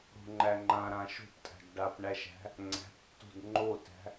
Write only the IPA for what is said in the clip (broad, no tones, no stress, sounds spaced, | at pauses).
ɽ o̤ ŋ͡ǃ æ ŋ͡ǃ ã ɾ ã ʃ o̤ p tʼ æ̤ d ɖ a p ɳ æ ʃ æ̤ | ŋ͡ǀ æ̤ p tː o̤ d ŋ͡ǃ o t æ̤